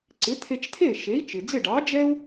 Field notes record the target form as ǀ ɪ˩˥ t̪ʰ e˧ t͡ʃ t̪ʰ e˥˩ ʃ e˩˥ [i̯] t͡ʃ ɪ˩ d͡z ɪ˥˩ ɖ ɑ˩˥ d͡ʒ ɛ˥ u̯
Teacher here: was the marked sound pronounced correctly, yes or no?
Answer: yes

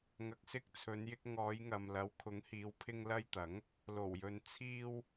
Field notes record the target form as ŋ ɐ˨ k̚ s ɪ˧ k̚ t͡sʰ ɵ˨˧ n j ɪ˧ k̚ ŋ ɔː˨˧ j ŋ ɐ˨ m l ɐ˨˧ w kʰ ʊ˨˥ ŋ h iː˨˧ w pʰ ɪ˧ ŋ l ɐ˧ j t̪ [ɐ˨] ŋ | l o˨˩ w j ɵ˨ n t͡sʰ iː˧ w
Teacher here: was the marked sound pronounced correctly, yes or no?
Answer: no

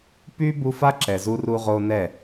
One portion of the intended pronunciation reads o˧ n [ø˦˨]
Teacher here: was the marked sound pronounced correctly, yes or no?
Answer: no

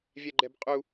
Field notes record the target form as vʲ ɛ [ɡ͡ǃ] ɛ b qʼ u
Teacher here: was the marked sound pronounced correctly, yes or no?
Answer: yes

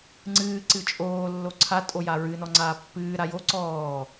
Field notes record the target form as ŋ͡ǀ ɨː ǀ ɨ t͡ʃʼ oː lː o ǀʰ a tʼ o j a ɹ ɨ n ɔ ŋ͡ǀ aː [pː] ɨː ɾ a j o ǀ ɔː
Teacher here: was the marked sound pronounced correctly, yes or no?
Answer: yes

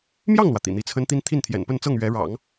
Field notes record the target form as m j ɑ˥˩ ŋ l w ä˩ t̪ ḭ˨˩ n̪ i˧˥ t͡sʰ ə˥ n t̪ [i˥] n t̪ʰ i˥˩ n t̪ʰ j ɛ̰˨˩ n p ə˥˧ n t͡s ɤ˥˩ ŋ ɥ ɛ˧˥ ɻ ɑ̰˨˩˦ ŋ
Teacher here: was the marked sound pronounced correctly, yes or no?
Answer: yes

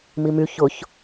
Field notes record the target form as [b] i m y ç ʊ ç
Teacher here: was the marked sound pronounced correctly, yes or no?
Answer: no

